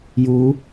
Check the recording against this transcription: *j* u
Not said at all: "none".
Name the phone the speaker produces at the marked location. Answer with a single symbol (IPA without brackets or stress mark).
j